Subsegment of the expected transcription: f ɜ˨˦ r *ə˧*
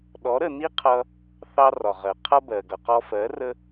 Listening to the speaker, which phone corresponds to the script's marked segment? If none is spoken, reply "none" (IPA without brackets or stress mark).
ə˧